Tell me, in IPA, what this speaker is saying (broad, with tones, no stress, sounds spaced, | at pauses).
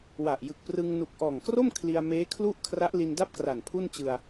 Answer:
w a˨˩ ʔ j ɯ˨˩ k̚ p r ɯ˧ ŋ n u˨˩ k̚ ʔ ɔː˨˩ ŋ k r o˥˩ m kʰ l i˧ a̯ m eː˦˥ kʰ l u˥˩ ʔ kʰ r a˦˥ ʔ l i˧ n d a˥˩ p̚ k r a˨˩ n pʰ u˥˩ n t͡ɕ ɯ˧ a̯